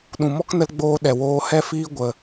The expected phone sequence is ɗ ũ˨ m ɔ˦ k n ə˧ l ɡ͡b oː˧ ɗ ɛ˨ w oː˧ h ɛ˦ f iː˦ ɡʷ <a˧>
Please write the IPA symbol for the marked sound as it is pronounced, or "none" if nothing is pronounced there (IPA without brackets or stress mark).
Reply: ə˧